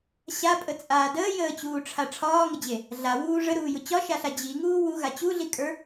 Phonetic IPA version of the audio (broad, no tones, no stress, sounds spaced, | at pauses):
ɕ a pʼ ə t͡sʼ aː d əː j əː t͡ɕ uː ʈ͡ʂʰ a ʈ͡ʂʰ ɒː ŋ ə d͡ʑ e | ɮ a w uː ʐ ə ɾ uː j ʊ t͡ɕ ɒ ʃ a ɬ a d͡ʑ i ŋ uː w u ɣ a t͡ɕ u ɮ i kʼ ə˞